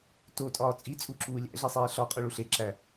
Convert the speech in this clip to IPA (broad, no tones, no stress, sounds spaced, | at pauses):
t o tʼ ɒː t͡sʼ i t͡sʼ u ǁ uː lʲ æ̰ ɮ i sˤ eː ɬ ɒ qʼ o ɭ u ɬ e ǁ æ